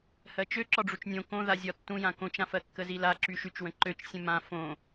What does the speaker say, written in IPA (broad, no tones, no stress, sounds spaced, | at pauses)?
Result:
h ɜ t͡ʃ ø ǁ ɒ ɖ͡ʐ u t͡ʃ nʲ õ k õ ð a zʲ ɒ tː ũ j ã k õ t͡ʃ ã f ɜ kː ə z i l a ǁ y ʃ y t͡ʃ w ə̃ ǃ ø t͡ʃ sʲ ə̃ m ã f õ